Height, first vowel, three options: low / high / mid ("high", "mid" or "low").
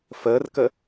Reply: mid